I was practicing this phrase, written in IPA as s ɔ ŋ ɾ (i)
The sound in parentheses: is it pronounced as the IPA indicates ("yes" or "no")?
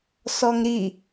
yes